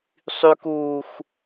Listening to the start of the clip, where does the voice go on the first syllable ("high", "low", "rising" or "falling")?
high